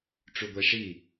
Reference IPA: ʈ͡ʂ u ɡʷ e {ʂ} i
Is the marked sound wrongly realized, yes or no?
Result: no